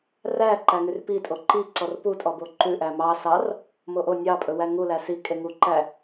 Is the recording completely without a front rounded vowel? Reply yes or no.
no